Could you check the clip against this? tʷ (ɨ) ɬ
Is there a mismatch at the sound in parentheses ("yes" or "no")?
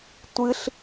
no